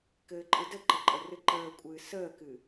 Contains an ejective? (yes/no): yes